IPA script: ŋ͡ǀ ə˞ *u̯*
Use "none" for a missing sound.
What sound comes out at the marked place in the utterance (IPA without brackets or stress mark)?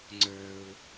u̯